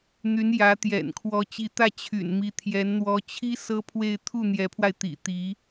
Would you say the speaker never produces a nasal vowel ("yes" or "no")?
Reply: yes